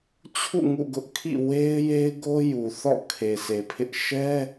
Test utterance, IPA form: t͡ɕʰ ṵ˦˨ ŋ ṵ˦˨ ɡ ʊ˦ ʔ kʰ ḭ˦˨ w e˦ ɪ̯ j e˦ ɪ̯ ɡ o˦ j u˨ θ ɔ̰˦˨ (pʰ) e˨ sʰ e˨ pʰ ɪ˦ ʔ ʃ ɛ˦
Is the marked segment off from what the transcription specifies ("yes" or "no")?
yes